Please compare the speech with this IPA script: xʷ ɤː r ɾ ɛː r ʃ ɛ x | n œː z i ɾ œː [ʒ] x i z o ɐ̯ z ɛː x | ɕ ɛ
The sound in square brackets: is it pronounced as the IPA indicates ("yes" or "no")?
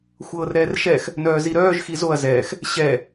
yes